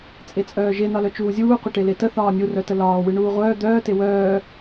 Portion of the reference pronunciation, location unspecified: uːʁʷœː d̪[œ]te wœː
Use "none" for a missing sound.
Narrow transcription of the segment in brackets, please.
œː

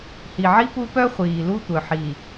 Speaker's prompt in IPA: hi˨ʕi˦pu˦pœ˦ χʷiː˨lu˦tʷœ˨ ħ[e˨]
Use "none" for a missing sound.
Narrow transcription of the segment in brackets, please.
i˨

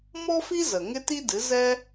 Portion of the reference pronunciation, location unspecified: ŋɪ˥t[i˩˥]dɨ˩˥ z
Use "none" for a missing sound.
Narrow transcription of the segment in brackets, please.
i˥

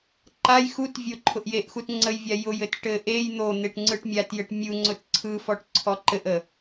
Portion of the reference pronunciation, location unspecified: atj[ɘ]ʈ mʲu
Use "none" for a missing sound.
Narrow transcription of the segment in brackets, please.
ɘ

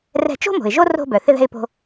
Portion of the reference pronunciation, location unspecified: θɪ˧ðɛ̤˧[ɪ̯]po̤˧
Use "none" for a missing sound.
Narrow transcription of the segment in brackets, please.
ɪ̯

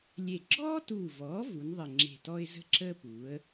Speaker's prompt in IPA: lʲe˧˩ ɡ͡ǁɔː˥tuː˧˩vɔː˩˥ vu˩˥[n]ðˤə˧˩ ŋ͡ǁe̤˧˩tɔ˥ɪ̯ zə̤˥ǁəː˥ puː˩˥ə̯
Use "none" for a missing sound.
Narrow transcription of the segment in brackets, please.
n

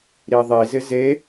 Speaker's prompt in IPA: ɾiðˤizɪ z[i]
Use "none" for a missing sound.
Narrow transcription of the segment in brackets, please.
e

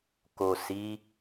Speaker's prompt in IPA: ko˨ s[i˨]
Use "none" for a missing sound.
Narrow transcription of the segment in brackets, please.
i˨˦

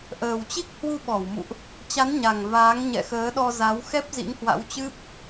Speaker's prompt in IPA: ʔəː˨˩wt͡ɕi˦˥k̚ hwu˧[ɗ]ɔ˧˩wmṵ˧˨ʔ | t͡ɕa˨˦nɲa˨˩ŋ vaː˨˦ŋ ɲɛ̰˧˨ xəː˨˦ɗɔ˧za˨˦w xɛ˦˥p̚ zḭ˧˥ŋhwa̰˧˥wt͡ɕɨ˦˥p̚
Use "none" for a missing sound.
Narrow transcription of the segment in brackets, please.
ɓ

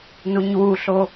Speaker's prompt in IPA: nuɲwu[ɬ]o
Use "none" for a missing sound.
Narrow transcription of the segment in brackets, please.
ɬ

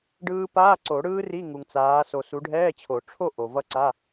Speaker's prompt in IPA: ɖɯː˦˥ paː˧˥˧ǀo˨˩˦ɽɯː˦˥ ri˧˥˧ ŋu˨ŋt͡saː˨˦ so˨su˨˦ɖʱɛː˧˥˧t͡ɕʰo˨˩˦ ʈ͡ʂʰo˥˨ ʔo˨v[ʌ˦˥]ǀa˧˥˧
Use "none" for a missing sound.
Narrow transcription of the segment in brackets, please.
ʌ˦˥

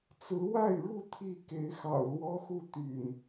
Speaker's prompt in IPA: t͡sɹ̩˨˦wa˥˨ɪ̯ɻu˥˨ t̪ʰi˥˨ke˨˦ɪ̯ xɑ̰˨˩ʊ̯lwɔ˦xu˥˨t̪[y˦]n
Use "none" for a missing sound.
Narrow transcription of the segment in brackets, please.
y̰˨˩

